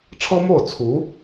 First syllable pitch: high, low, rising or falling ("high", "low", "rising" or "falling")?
high